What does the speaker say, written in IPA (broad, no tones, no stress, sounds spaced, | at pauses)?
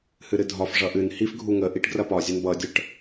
h ɨ ɾ ɨ dʱ ɒ f ʐ ʌ ʔ ɨ n h i f ɡʱ u ŋ ə ʔ i ʈ ɡ r ɐ p ɒ zʲ ɐ n b ʌ dʲ ə ʈ